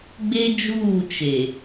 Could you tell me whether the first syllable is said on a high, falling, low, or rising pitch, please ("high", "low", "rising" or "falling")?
high